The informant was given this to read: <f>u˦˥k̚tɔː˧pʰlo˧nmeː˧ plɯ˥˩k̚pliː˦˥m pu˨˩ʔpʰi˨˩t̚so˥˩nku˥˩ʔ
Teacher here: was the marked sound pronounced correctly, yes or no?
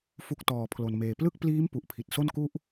yes